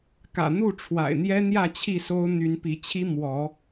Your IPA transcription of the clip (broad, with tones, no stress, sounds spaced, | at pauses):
k ä̰˨˩ n̪ u˥˨ ʈ͡ʂʰ w a̰˨˩ ɪ̯ n̪ j ɛ˦ n̪ j ä˥˨ t͡ɕʰ i˥˨ s o˦ ʊ̯ n̪ y˨˦ n p i˨˦ t͡ɕʰ i˦ m w ɔ˨˦